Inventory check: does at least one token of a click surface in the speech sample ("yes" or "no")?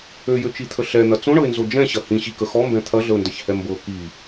no